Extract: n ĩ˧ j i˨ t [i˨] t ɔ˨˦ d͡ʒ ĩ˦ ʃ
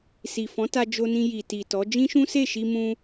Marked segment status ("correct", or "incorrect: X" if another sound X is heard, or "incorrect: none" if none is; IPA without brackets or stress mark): correct